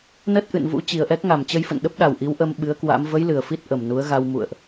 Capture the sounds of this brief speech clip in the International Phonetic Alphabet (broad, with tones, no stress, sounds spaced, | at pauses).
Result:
n ə˦˥ t̚ ʔ ɨ̰˧˨ n v ṵ˧˥ t͡ɕ i˨˩ ə̯ ʔ ɛ˦˥ k̚ ŋ a˨˩ m t͡ɕ ə˧ j f ə̰˧˨ n ɗ ə˦˥ p̚ ɗ a˨˩ w ʔ i˨˦ w ʔ ə˧ m ɓ ɨ˨˦ ə̯ k w a̰˧˥ m v ə˨˦ j l ɨ˨˩ ə̯ f i˦˥ t̚ ʔ ə˨˩ m n u˨˦ ə̯ ɣ a˧ w m ṵ˧˨ ə̯ ʔ